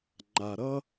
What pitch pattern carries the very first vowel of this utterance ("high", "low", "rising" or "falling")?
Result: low